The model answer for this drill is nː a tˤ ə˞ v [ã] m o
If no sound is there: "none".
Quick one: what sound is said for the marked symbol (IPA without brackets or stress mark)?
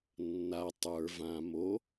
ã